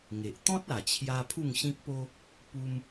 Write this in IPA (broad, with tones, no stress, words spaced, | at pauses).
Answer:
ŋe˨ʔ t̪ɔ̃˦t̚a˨˩t͡ɕʰja˧ pʰu˥˧ŋɕĩ˦k̚po˦ | pu˧m